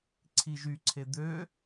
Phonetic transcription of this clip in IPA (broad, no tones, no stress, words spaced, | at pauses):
ǀʰiʒyǀʰe d̪ø